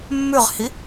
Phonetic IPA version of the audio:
mːʉʁhi

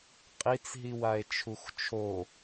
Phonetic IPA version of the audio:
qʼit͡sɦiwae̯ t͡ʃʰuxt͡ʃʰo

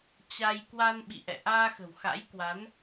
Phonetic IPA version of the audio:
t͡ɕa˧j kwa˧n ɓḭ˧˨ʔɛ̰˧˨ ʔaː˧xə̤˨˩wxa̰˧˥j kwa˨˦n

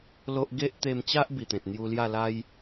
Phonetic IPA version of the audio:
lo˦ʔ ɡe˦ʔt̪e˧mt͡ɕa˦ʔ bi˨˩t̪ẽ˨t̚ n̪ju˧lja˥˧la˦j

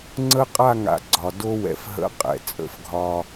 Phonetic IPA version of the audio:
ŋ͡ǀə˦qʼa˦˨ŋa̰˨ ɡ͡ǀɒ˨ do˦wɛ̰˨fɦə̰˦ qʼɛ̰˨ t͡sʼə̰˦˨fɡʱɒ˦

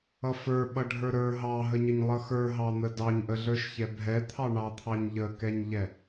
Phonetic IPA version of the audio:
ʌfə˞ ɓʌɖʱə˞ɾə˞ ɦɑɦəɲəɲ lˠʌxə˞ɦɑn̪ə dɑɲʔəɮə˞ʃçɛ bʱɛt̪ʰɑɳɑt̪ʰɑɲ ʎəkɛɲʎɛ

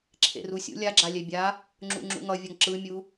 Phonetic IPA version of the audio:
ǁʰḛrusʲṵ lʲaɡ͡ǁa lʲɛbʲa | ŋ͡ǁṵŋ͡ǁṵŋʌvʲʌŋ ǁɯmʲu

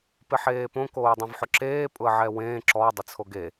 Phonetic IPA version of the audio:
pɪħeːpõ koːdˤẽvħʊǁeː pʼʊə̯ʕɛwẽː ǁɔ dˤɪt͡sʰoɡe

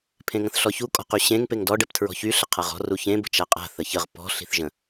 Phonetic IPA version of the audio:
pʰẽŋə̃θɬɔçu kʼɔ̤qyɕẽŋ peŋdɔ ɖɛptʰɹɔ̤çy ɬəqʰaʁɔ̤ ruçẽ bə̤t͡ʃaqʼa̤ θəçəʁ pɔ̤ ɬi̤θʒə̃

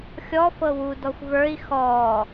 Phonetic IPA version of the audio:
xʲɔ fɤwu dɔxʷvə˞i̯ xɔ

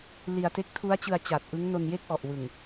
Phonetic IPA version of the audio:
li˧a̯te˦˥k̚ tʰu˦˥a̯t͡ɕɯ˧a̯ t͡ɕa˨˩t̚ʔɯ˦˥ŋ no˧nje˥˩k̚ʔɔ˨˩ʔwɯ˨˩ŋ

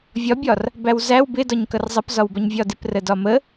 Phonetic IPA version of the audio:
vʲɒbʲɒr | bæwzæw bɪdɒɲ kʌrzˤʌpzɒwbʌɲ vʲɒdɪprə dɒmə

